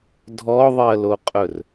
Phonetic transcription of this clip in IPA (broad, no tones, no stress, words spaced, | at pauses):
dʱɔðˤɜloqʼɵr